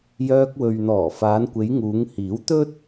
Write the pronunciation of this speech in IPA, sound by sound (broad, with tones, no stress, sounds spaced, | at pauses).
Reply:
j œː˧ k̚ w ɵ˨ ɥ n̪ ɔː˨˩ f aː˨˧ n kʷ e˨˧ j ŋ uː˨˧ ŋ h iː˨˥ w t̪ ɵ˥ t̚